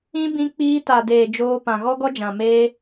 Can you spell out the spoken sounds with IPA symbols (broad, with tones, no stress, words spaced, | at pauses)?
ĩ˦ bĩ˧k͡piː˧ta˨ deː˨d͡ʒoː˧ pã˨ɣɔ˦ɡɔ˦d͡ʒã˨ meː˧